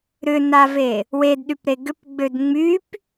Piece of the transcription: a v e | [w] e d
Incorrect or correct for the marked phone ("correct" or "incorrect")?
correct